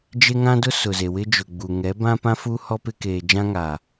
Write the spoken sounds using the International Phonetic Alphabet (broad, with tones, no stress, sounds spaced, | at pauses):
d͡ʒ e˦ ŋ ã˦ d ʊ˦ s ʊ˨ z e˨ w ɪ˦ d͡ʒ ʊ˨ ɡ͡b u˨ ŋ ɛ˨˦ b ã˦ p ã˦ f u˦ h ɔ˦ p ɪ˦ k eː˨ d͡ʒ ã˦ ŋ a˨